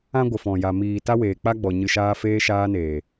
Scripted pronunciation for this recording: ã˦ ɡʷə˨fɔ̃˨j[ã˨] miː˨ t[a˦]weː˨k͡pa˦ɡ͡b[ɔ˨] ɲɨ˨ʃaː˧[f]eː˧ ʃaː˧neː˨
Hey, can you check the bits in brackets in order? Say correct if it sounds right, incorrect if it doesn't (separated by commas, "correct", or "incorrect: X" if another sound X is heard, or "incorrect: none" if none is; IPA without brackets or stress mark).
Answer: incorrect: a˨, correct, correct, correct